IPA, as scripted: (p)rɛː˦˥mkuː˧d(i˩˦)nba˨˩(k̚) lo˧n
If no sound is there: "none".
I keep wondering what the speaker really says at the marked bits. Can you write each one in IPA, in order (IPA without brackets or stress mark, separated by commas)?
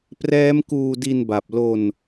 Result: p, i˧, p̚